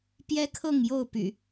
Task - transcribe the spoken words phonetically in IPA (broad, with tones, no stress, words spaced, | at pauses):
pjɛ˦kʰɤ˥˨ŋ jo˥˨ʊ̯py̰˨˩